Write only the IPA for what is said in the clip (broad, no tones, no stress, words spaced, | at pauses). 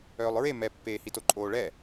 œːlˠɹe mɛpːeːhito ǃʼoːɭɛ